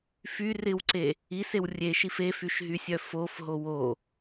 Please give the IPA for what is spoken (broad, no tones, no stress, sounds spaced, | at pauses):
f y r ɪ w ǀ e | i s e w rʲ e ʃ i f e f y ʃ ɦ y sʲ œ f o f ɦ o w o